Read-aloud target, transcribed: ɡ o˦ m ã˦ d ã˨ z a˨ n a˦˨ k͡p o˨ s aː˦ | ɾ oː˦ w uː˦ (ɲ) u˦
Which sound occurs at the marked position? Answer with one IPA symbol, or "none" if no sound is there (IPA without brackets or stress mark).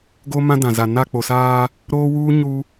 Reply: ɲ